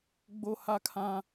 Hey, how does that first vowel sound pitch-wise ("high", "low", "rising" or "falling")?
high